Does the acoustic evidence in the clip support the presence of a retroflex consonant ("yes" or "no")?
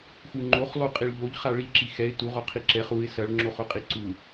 yes